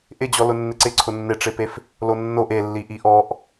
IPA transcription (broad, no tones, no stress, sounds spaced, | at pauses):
ʔ ɪ d͡ʑ ɔ l ʊ nː ɪ ǀ ɪ ǀʰ ʊ nː ɪ ʈ͡ʂ ɪ p e f | l o nː o ʔ e lː i ʔ i ʔ ɔ ʔ